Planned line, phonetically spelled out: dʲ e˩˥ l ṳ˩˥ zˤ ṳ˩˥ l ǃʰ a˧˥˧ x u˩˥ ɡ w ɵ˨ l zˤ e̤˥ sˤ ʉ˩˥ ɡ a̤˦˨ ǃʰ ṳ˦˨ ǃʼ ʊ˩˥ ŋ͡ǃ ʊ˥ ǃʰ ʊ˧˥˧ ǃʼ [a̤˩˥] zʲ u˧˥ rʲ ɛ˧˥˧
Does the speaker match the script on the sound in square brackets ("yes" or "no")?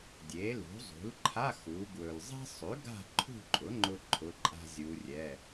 no